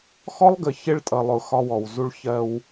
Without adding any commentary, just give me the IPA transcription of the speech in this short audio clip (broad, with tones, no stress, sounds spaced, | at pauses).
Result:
x ɔ˦ lˠ ɡ ə˨ ç ɪ˦ ɭ tʼ ʌ˨ lˠ ʊ˨ x ɒ˦ w ɔ˨ w z u˦ ɭ ç ɜ˦ w